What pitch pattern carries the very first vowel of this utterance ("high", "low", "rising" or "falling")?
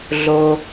low